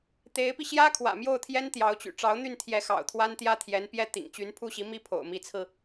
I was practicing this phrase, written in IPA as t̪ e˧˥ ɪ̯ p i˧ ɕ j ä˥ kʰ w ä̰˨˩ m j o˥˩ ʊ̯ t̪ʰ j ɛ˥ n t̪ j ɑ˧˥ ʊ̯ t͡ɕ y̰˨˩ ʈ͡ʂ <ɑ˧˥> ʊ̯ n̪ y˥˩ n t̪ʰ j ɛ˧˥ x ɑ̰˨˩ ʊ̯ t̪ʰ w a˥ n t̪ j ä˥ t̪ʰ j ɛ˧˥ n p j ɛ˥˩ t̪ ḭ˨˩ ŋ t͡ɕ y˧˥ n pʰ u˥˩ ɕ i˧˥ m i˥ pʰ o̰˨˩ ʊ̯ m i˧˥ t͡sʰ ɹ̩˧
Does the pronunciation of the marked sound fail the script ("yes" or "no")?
no